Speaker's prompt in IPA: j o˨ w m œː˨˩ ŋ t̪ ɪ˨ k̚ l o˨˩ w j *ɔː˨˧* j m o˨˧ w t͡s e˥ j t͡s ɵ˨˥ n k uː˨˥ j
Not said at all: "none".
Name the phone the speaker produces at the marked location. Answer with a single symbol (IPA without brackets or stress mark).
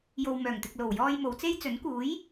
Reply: ɔː˧